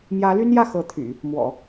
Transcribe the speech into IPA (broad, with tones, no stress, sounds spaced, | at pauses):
m j ä˧˥ l y˥ n j ä˥˩ x ɤ˧˥ t̪ʰ y̰˨˩˦ | m w ɔ̰˨˩˦